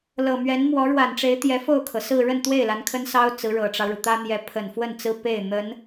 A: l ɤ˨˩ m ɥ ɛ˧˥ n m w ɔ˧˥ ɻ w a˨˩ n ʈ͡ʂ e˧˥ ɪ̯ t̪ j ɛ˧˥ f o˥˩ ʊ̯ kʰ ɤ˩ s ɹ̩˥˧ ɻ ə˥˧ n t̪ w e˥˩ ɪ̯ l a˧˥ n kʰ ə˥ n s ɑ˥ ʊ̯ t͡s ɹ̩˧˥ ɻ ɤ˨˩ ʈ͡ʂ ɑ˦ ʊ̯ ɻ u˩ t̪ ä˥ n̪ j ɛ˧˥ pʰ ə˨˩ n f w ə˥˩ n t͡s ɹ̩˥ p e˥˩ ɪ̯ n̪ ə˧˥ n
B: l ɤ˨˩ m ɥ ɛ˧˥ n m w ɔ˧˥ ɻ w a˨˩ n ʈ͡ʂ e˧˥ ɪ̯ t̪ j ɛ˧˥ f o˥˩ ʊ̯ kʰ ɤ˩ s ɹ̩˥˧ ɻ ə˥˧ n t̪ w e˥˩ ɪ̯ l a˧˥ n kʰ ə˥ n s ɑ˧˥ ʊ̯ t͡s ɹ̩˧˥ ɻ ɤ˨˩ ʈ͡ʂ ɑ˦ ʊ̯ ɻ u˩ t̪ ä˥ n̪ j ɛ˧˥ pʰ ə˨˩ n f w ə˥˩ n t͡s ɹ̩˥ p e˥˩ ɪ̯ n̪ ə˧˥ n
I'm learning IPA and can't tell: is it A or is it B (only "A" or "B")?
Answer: A